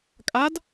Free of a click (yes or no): yes